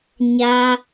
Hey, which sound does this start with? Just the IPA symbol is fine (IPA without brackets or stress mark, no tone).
ɲ